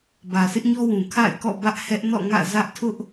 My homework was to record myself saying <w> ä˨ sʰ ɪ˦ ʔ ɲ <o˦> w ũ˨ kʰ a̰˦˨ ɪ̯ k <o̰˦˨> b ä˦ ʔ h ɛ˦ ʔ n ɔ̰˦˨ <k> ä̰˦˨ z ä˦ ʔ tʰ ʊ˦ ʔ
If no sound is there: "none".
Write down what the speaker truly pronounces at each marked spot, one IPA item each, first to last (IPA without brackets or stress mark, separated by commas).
b, ɔ˦, ɔ̰˦˨, ŋ